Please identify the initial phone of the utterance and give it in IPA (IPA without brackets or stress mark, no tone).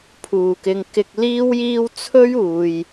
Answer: pʰ